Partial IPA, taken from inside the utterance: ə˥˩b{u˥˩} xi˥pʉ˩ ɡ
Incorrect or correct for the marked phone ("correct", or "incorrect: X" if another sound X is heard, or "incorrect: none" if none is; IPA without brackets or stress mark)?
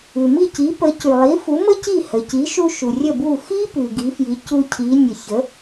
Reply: correct